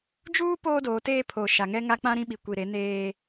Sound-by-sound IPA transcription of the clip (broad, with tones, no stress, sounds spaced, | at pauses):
d͡ʒ uː˦ p oː˦ d oː˨˦ t eː˦ pʰ o˨ ʃ a˨ ŋ ɛ˦ ŋ a˦ k͡p ã˦ ɾ ĩ˦ ɓ i˨ kʷ i˨ ɾ e˨˦ n eː˦